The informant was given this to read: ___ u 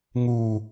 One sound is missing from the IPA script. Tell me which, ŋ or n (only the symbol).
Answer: ŋ